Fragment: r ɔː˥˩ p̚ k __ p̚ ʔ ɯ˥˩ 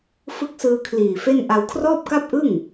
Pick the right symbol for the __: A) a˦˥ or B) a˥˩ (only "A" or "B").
B